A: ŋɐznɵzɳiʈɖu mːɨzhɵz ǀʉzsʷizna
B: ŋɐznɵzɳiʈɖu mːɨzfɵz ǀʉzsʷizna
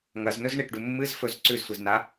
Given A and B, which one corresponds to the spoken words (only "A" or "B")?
B